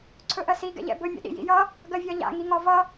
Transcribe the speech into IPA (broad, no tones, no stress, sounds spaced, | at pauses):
ǀʰ ɵ ʔ ɜ s i ɡ ɛ̰ ʎ ɛ̰ b ɵ mʲ ɛ̰ ɗ ḭ j ḭ j ʌ | ɡ ɜ vʲ ɒ ʎ a̰ ŋ i ŋ ɒ v ʌ